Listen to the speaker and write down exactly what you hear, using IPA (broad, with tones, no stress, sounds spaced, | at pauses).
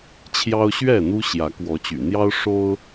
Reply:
t͡ɕʰ j ɑ˦ ʊ̯ ɕ ɥ ɛ˥˨ n̪ u˦ ɕ j ä˨˦ k w ɔ˨˦ t͡ɕ y̰˨˩ n̪ j ɑ˦ ʊ̯ ʂ o˦ ʊ̯